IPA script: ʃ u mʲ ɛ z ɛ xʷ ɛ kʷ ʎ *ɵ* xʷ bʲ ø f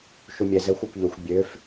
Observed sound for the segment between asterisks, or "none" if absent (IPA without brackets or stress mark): ɵ